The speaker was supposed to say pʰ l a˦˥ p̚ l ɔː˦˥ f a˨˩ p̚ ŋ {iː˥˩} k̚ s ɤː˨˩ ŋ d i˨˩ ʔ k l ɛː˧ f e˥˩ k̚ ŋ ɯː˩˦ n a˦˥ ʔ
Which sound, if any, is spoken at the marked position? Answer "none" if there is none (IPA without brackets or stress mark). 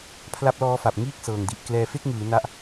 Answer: iː˥˩